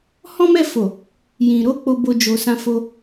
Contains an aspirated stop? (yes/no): no